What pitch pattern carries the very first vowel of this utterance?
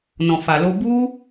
low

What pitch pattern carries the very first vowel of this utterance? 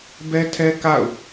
high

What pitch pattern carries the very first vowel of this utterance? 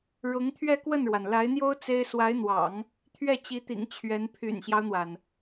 rising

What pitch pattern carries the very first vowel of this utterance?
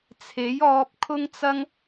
rising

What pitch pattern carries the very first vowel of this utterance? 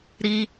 high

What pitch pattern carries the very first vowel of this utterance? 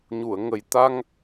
low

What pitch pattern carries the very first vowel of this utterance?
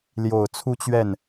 low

